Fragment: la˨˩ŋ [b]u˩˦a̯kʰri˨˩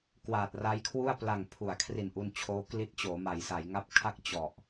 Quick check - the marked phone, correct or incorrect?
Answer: incorrect